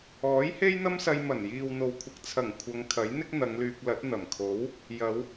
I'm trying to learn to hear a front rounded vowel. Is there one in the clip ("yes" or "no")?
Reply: yes